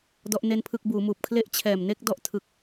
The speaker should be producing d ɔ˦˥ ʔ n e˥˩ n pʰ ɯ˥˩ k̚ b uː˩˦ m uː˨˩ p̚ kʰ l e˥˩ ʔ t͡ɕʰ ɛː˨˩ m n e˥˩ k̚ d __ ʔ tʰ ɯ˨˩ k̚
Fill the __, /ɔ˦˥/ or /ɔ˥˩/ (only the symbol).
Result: ɔ˦˥